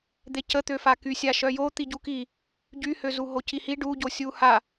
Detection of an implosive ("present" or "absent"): absent